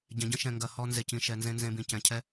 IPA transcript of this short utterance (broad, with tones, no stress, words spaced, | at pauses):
ɟɛ̃˨ɟə̃˦ʃɛ̃˨ ŋɡɐ˨ hɔ˦ nze˨cĩ˨ ʃɛ˨ nzẽ˦nzẽ˦bĩ˨ cɛ̃˨ cʰɛ˦